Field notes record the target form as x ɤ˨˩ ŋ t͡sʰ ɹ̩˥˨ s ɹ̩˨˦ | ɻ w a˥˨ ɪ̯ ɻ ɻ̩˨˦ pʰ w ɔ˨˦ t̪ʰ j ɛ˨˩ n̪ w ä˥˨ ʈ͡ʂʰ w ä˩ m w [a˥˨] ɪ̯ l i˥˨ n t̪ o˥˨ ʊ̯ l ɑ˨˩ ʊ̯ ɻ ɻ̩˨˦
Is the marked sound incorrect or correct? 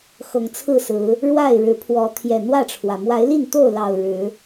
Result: incorrect: a˨˦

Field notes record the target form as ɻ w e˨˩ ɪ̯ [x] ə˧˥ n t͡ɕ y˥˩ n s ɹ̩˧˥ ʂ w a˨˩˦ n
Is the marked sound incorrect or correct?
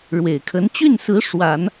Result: incorrect: kʰ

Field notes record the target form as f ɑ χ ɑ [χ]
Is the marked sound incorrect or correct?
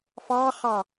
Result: incorrect: none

